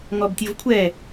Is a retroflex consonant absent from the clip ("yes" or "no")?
yes